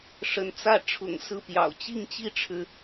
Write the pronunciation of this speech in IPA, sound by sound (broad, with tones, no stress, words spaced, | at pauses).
ʂə˧˥nt͡sä˥˩ ʈ͡ʂʰʊ̰˨˩ŋ sɹ̩˥˩pjɑ̰˨˩ʊ̯ t͡ɕi˥˩ŋt͡ɕi˥ʈ͡ʂʰɻ̩˨